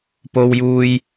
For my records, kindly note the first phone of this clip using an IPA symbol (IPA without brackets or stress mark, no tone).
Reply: p